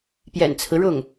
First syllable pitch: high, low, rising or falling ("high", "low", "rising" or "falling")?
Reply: low